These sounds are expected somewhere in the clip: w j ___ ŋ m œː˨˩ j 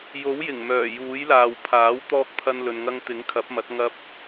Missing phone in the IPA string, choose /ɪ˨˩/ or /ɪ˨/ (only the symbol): ɪ˨˩